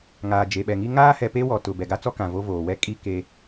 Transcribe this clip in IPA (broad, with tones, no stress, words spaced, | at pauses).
ŋaː˨d͡ʒe˨ɓɛ˨ŋi˦ ŋaː˦hɛ˨ pe˦wɔ˨ tʊ˨ bɛ˨ɡa˦t͡sɔ˦kã˨ vo˦voː˨ wɛ˦kʼi˦ ke˦